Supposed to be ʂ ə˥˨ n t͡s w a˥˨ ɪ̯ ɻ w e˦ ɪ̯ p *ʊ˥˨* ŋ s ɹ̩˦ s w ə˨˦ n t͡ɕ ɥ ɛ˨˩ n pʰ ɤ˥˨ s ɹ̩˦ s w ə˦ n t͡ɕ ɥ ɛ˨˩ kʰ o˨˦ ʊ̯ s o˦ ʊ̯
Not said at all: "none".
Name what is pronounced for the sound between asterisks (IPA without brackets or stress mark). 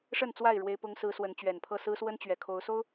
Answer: ʊ˦